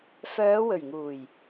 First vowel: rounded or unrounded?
rounded